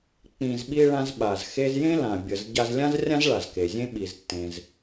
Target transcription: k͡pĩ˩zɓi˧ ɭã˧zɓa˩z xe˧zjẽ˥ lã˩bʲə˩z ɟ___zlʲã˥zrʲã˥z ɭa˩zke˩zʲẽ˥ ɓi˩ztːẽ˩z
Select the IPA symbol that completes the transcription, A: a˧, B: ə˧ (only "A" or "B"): A